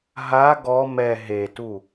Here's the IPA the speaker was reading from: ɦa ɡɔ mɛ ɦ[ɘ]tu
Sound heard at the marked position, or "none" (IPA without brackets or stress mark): e